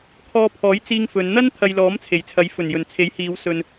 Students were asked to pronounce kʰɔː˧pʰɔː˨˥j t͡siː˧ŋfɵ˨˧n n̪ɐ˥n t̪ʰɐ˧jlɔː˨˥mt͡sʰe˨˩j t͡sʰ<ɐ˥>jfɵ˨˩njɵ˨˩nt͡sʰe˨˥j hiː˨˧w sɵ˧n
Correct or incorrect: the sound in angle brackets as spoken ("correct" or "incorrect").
incorrect